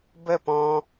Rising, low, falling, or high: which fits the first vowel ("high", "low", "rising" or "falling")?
falling